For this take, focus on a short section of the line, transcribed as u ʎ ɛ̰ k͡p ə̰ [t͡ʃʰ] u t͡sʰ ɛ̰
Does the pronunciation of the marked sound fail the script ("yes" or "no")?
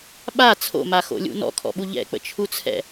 no